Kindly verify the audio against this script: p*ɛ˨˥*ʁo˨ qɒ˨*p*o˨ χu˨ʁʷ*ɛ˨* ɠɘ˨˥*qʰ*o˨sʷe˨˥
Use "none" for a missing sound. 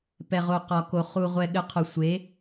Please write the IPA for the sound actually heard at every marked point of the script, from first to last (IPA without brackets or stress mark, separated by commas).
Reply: ɛ˨, k, ɛ˨, qʰ